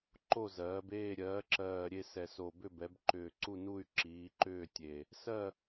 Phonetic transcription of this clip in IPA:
ǃ o˦˨ z ɜː˩˧ b eː˦˨ ɾʲ ɜː˩˧ ǁ ɜː˨˩ ɾʲ e˦˨ s ɛ˨˩ s o˨˩ b ʏ˦˨ b ɛ˩˧ b ǃ ʏː˨˩ ǀ u˦˨ n u˦˨ y̯ ǁ iː˩˧ ǃ ʏː˦˨ tʲ e˨˩ | s ɜ˦˨

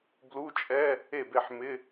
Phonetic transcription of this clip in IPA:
b l u˧˥˧ t͡ʃʼ ɛ˧˥˧ | e˥˩ b e˥˩ ħ m ɪ˧˥˧

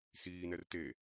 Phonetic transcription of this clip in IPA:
s iː n ɛ r t e

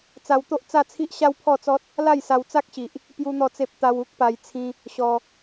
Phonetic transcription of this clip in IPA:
t͡s a˧ w t̪ o˦ ʔ t͡s a˥˧ t͡sʰ i˦ ʔ ɕ a˦ w pʰ ɔ˥˧ t͡s ɔ˦ t̚ | l a˥˧ j s a˧ w t͡s a˦ k̚ ɕ i˨ ʔ | p j u˦ n̪ ɔ˥˧ t͡s e˦ p̚ t̪ a˧ w u˦ k̚ p a˧ j t͡sʰ ĩ˧ | ɕ ɔ˧

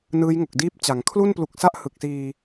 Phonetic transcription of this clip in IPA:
n ɯː˦˥ j ŋ o˨˩ k̚ d iː˥˩ p̚ t͡ɕ a˩˦ ŋ kʰ l u˥˩ n p l u˨˩ k̚ s a˥˩ ʔ h ɯ˨˩ k̚ s iː˧

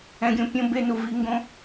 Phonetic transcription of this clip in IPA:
ɛ̃˧ ɡʲ õ˦ pʲ õ˧ b e˧ n u˨ v i˧ ŋ ɡ õ˦

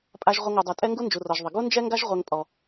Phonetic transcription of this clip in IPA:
pʼ a˧ ʒ ʁʷ ə˧ ŋ u˨ dˤ ɛ˨ tʼ ɛ˦ ŋ ɡ u˦ n d͡ʒ u˨ r ɔ˨ ʒ ðˤ ə˨ ɡ u˦ n d͡ʒ ɛ˦ ŋ ɡ a˦ ʒ ʁʷ ɛ˧ ŋ pʼ ɔ˨

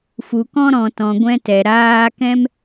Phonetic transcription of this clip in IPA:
f u˨ k ɔ̃˧ ɾ ɔ̃˨ t ɔ̃˨ ɡʷ ɛ̃˧ t ɛ˨ ɾ aː˧ k ɛ̃˦ m

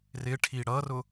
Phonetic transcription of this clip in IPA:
r ɪ ʈʰ i ɽ ʌ r ʊ

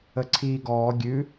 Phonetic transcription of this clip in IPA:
ə ǀʰ iː ɡ ɔː ɡʲ ʉ

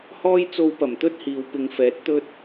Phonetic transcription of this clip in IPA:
h ɔː˥ j t͡s o˧ w p ɐ˨˩ m t̪ ɵ˥ t̚ h iː˨ w p ɪ˨˧ ŋ f ɛː˨˥ t̚ t̪ ɵ˥ t̚

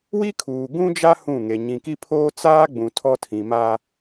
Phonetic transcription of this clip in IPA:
w i˦ kʰ uː˨ ɡ ũ˦ d͡ʒ a˦ h ũ˦˨ ŋ e˨ ɲ ĩ˨ k i˦ pʰ oː˦ t͡s aː˦ ɡ͡b ũ˨ tʰ ɔ˦ tʰ ĩ˨ m aː˦

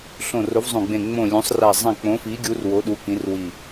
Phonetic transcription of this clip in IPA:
ɬ õ˧˩ r o˨˥ v zˤ õ˧˩ ɡ͡b ẽ˧˩ ŋ͡m õ˧˩ lʲ õ˨˥ sˤ r a˧˩ zˤ ɛ̃˧˩ k͡p õ˨˥ f i˨˥ ɡʲ u˨˥ r w o˨˥ ɗ u˨˥ k ĩ˨˥ r w i˧˩

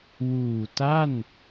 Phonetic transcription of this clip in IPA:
w uː˨˩ t a˥˩ n

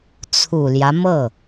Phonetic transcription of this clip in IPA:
t͡sʰ u˨˩ l j ä˦ m ɤ˥˩

